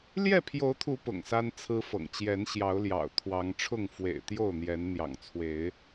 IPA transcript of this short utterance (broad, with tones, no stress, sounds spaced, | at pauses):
l j ɛ˥˨ pʰ j o˨˦ ʊ̯ t̪ʰ u˨˦ p ʊ̰˨˩ ŋ s a˦ n t͡sʰ ɹ̩˦ f ɤ̰˨˩ ŋ t͡ɕ j ɛ˨˦ n ɕ j ɑ˨˦ ʊ̯ l j ɑ̰˨˩ ʊ̯ t̪ʰ w ɑ˨˦ ŋ ʈ͡ʂʰ ʊ˥˨ ŋ f w ḛ˨˩ ɪ̯ t̪ j o˥˨ ʊ̯ n̪ j ɛ˨˦ n n̪ j ɑ̰˨˩ ŋ t͡sʰ w e˨˦ ɪ̯